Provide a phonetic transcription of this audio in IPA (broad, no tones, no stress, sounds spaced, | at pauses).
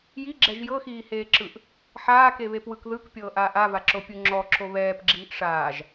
j i ɡ͡ǁ ɛ ʒ j ɤ x iː h eː ǁ ɯ ʔ | ħ aː k e β e p w ɯ k ð ɯ k pʲ ɤː ʔ aː ʔ a v a ǁ o pʲ u ŋ͡ǁ ɔ ǁ o β ɛː p ɡ͡ǁ iː ʔ ʂ aː ʒ